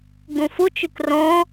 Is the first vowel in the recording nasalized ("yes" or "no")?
yes